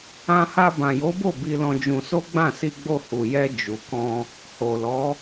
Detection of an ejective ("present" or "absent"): absent